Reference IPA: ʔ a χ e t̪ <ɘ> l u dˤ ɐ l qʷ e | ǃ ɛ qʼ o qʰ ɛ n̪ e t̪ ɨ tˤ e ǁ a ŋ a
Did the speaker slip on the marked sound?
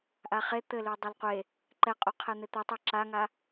no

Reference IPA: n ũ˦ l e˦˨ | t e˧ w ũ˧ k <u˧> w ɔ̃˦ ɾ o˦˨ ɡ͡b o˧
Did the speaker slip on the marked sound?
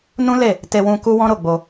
yes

